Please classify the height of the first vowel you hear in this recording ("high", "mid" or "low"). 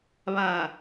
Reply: low